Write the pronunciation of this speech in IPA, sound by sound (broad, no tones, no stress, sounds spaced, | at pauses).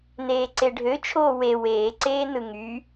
n eː ǀ e ɖʱ ø t͡ʃʰ oː w e w eː ǀ eː n ɯ ŋ y